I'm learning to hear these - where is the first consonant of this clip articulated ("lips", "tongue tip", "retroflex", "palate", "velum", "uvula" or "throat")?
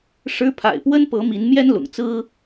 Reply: retroflex